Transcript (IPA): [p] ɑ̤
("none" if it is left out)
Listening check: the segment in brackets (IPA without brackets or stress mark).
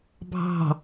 bʱ